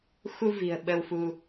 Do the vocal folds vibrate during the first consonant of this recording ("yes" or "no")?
no